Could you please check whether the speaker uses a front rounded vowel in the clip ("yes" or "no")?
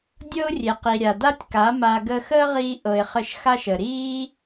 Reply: no